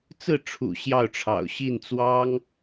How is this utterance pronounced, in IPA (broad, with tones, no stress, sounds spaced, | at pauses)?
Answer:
t͡s ɹ̩˥˩ ʈ͡ʂʰ ṵ˨˩ ɕ j ɑ˥˩ ʊ̯ ʈ͡ʂʰ ɑ̰˨˩ ʊ̯ ɕ i˥˩ n t͡s w ɑ˥ ŋ